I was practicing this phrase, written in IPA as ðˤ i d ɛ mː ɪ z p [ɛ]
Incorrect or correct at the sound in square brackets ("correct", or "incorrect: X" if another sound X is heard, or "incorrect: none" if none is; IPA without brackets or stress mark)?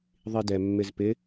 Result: incorrect: ɪ